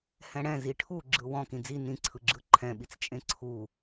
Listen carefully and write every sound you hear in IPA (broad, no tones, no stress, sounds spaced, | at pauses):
h ɛ̃ ɽ ɛ̃ z i ʈʰ u ɡ͡ǁ ɯ w ɔ̃ k ĩ d͡z i n ĩ ǀʰ ɯ ɡ͡ǁ ɯ ǃʰ ɛ̃ ɓ i t͡s t͡ʃʼ ẽ ǀʰ u